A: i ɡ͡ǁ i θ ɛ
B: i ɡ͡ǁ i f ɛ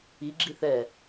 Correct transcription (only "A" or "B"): A